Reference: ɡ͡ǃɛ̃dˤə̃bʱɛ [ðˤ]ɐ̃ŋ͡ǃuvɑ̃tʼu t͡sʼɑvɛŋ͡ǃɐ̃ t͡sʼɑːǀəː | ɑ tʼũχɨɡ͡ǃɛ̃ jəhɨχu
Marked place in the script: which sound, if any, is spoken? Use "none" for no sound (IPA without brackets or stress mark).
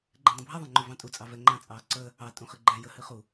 ðˤ